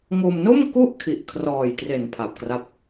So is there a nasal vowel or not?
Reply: no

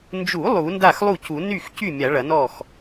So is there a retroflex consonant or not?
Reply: yes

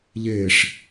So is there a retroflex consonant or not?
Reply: yes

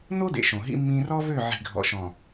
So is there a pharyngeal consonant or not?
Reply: yes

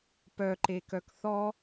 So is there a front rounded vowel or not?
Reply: yes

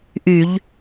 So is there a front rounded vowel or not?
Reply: yes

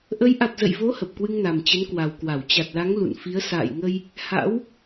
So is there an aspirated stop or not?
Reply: no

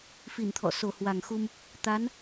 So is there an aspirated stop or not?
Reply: yes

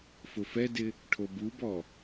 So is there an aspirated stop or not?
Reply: yes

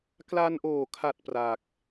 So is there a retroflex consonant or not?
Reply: no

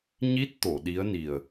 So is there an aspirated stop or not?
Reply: no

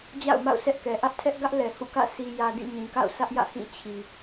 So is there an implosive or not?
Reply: no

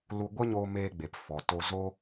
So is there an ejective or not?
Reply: no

